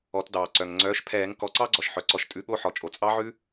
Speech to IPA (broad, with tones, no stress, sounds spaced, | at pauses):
ɔ˨˩˦ t d ɑː˩ ǀ œ˩ ŋ ŋ͡ǀ œː˩˥ ʃ pʰ ɛː˨˩˦ ŋ k ɔ˩˥ ǀ ɑ˦˥ ɡ͡ǀ ɔ˩ ʃ ħ œ˩ ǀ ɔ˩˥ ʃ tʼ ʉ˩˥ ɠ o˧˥˧ ħ ɔ˩ t͡ʃʼ o˩ t͡sʼ ɑ˦˥ ʕ ʉ˦˥